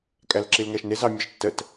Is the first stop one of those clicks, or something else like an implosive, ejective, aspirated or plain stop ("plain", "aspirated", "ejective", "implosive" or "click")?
ejective